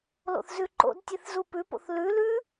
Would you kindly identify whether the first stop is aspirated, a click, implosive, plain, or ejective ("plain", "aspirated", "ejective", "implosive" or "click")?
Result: click